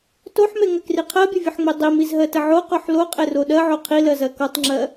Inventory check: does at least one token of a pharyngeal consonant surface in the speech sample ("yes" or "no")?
yes